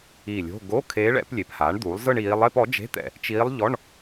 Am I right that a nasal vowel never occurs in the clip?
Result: yes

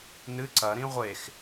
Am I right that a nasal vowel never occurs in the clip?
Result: no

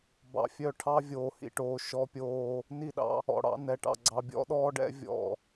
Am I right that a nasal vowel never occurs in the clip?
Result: yes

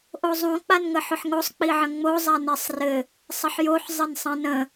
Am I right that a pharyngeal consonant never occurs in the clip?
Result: no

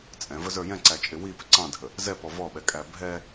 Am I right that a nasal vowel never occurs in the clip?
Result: no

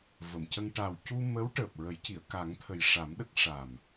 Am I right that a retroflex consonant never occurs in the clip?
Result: no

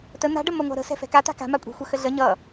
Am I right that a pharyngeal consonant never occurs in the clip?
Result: yes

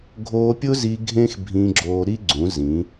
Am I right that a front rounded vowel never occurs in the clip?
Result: yes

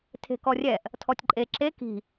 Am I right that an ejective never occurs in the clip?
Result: no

